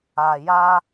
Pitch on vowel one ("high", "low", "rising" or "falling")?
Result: low